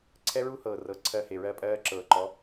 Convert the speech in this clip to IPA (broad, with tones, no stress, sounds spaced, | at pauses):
ǀʰ ɛ˦ ɹ u˦ h ɤː˨ r ɤ˨ ǀʰ ɜ˧ h e˨ ɹ ɜ˧ pʼ ɜː˧ ǁ ɤː˨ ǃ ɔ˨˦